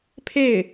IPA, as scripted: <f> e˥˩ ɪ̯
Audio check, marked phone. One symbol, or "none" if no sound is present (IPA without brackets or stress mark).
pʰ